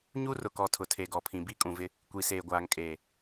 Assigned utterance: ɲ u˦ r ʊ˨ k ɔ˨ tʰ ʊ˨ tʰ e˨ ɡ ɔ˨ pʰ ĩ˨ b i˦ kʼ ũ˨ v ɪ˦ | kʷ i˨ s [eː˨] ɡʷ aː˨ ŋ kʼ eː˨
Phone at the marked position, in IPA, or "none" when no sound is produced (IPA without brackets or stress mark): eː˨